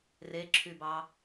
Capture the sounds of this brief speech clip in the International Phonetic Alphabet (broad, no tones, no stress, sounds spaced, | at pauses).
r e ǁʰ y b ɑ